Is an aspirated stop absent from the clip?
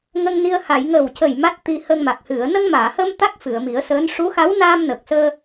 yes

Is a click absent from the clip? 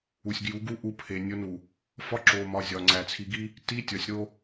no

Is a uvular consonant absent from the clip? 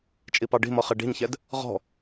no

